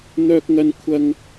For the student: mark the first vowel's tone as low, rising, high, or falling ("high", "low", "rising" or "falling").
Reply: high